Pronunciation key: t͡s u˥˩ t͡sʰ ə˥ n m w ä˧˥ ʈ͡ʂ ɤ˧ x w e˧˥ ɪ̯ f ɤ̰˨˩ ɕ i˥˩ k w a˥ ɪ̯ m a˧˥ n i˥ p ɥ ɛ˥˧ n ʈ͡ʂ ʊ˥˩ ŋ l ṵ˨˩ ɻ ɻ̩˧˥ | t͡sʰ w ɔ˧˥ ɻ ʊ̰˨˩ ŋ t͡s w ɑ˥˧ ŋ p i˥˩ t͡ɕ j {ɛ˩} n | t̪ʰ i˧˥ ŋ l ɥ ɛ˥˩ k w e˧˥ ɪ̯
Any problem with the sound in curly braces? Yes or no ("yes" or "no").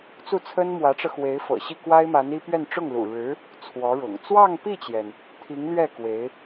no